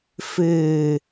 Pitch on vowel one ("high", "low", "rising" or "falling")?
low